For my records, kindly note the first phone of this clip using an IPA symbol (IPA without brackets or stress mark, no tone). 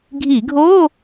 ɡʱ